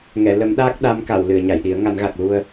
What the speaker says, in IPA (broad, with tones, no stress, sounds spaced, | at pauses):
ŋ ɛ˨˩˨ l ə˨˩˦ m ɗ aː˦˥ k̚ ɗ a˧˥ m k a˨˩˨ w l ɨ˨˩˨ ə̯ ɲ a˨˩˨ j ɗ i˨˩˦ ə̯ ŋ a˨˩˦ n ɣ a˨˩ k̚ l u˧ ə̯